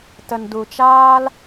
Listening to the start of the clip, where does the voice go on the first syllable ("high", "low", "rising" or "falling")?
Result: low